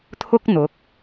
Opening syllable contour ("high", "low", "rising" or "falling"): high